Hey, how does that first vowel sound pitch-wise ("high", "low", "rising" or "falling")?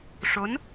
rising